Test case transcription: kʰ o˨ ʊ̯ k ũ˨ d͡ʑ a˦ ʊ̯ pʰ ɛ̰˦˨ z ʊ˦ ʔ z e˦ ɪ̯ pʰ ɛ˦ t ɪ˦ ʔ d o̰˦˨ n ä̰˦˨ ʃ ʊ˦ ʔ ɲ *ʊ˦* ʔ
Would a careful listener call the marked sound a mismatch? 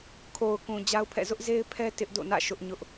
no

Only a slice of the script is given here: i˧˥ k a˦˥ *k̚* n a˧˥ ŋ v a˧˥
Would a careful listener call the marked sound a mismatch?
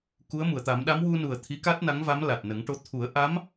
yes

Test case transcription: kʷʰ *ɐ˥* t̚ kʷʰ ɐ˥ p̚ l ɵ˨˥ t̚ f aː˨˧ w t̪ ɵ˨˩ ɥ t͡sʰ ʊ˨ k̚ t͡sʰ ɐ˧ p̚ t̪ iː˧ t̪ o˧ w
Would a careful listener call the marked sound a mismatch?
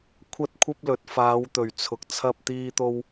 no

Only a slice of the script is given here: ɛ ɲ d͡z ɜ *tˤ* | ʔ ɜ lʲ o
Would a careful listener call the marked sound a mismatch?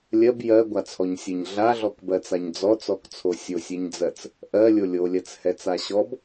yes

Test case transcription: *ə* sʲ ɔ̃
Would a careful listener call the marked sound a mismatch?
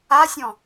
yes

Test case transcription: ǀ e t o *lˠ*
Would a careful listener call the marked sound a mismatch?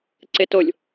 yes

